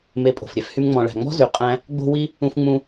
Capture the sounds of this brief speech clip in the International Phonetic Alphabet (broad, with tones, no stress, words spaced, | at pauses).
me˧pʼo̤˨fɾʲɛ˦fhy˦m ŋ͡mɔ̃˨ɭæ̤˨ŋ͡mɔ̤˦ zy˨qʼæ̃˧ | ɡ͡bo̤˦ wi˦ | ũ˧fŋ͡mũ˧